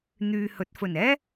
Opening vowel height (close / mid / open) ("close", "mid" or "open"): close